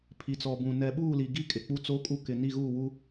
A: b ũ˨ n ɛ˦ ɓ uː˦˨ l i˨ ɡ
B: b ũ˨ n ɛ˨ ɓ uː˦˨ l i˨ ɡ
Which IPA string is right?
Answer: B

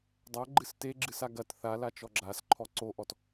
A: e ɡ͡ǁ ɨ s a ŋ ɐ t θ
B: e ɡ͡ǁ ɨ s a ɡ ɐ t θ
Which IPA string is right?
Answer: B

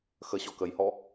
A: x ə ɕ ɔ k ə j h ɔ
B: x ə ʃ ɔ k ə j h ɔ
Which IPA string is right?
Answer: A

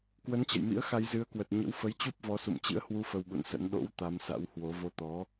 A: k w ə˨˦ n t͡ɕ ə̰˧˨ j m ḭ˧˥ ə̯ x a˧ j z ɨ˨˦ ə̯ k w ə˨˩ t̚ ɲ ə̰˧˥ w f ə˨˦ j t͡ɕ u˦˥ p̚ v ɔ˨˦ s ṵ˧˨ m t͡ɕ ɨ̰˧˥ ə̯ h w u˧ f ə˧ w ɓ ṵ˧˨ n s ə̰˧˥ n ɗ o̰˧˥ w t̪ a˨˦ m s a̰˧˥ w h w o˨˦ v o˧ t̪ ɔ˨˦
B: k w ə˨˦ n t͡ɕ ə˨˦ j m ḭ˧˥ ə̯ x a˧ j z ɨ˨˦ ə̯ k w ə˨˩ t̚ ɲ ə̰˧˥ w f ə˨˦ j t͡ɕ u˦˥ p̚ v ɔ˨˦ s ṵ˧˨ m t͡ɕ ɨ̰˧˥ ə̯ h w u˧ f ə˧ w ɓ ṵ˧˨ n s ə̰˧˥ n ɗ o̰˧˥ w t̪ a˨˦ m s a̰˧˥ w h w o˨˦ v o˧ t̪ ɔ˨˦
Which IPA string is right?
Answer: A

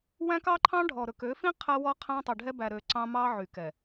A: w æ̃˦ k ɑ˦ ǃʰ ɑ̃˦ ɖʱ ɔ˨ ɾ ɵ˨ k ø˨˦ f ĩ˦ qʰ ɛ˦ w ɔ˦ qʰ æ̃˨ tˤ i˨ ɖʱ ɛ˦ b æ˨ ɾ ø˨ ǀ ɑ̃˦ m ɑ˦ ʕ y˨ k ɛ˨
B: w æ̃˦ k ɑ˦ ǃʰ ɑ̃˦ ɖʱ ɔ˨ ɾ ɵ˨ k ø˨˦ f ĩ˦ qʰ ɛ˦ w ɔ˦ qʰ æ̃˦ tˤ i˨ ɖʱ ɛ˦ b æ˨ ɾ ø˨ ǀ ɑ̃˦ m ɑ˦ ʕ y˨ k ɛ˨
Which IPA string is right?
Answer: B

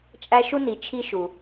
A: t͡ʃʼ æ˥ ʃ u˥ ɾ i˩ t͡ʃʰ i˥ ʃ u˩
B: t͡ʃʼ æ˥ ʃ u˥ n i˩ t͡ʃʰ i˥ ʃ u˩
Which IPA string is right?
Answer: B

